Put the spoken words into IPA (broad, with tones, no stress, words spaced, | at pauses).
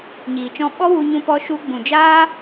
ɲiː˨t͡ʃɔ̃˧ɓɔ˦wu˧ ɲũ˧pɔ˧ʃu˧ ɡ͡bũ˨d͡ʒaː˦